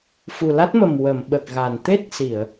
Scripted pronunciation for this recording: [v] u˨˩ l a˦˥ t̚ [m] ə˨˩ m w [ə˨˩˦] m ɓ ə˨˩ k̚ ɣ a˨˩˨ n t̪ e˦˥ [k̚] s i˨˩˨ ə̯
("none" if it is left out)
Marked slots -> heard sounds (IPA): f, m, ə˨˩˨, t̚

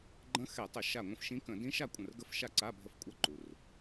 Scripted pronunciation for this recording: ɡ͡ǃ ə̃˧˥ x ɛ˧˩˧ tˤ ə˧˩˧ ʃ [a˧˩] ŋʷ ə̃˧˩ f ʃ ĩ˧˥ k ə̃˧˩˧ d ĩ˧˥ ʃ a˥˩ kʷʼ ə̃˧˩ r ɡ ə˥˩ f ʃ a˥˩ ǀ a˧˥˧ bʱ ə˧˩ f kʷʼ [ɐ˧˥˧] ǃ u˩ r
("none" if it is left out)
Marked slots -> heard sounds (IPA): a˧˩, ɐ˧˥˧

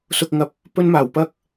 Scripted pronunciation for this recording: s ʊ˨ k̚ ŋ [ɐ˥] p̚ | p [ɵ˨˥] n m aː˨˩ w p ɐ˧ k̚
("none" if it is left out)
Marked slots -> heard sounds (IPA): ɐ˨˥, ɵ˧

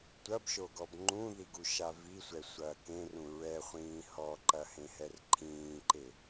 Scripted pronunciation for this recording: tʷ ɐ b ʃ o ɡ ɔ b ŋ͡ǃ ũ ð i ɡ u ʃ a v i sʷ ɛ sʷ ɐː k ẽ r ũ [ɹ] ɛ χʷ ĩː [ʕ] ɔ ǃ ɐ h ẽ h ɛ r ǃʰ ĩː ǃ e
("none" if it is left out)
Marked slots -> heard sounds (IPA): ɹ, h

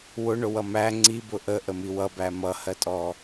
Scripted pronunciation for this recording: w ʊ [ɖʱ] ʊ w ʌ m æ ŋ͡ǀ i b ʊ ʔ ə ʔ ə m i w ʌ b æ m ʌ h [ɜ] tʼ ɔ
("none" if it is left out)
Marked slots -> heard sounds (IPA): ɳ, ɜ

